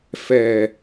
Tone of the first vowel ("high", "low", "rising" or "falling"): low